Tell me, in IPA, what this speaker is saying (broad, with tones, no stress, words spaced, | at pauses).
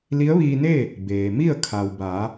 li˧˥ə̯ʋiː˧neː˥˨ | beː˩mi˥˨ə̯ kʰa˩w baː˩˧